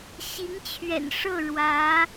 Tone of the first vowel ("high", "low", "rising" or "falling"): rising